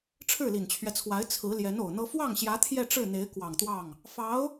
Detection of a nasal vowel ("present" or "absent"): absent